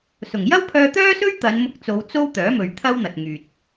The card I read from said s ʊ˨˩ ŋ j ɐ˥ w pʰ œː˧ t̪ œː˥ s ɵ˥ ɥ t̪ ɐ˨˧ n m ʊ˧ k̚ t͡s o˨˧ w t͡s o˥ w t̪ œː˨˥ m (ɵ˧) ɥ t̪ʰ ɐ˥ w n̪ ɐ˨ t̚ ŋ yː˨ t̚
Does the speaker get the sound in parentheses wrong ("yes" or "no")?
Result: yes